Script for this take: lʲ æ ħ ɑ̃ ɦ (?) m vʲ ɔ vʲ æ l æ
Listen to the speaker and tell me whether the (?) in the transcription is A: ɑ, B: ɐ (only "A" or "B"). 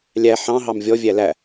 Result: A